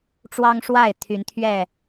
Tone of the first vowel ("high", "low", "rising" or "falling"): high